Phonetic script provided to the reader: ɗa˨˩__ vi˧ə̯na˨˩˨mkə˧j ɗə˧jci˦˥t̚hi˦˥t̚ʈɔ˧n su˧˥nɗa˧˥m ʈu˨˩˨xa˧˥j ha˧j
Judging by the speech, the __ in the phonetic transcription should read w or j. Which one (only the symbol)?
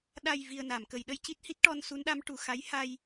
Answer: j